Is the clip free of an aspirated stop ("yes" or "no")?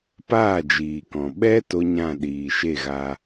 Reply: yes